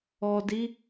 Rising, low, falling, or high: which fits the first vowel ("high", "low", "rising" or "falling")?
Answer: low